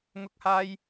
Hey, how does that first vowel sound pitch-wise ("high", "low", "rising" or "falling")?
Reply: high